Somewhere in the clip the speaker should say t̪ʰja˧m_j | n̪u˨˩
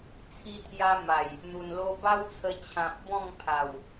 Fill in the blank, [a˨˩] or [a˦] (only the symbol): a˨˩